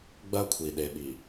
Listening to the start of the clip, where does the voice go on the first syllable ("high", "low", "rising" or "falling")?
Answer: high